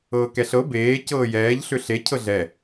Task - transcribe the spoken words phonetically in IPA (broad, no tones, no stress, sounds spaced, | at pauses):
ɤː k ɛ ɬ ɤ b eː c ɤː j ɛː ʎ ɬ ʏ ɬ e cʰ ɤ ɮ ɛ